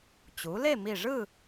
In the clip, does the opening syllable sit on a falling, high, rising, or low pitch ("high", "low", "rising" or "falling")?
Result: rising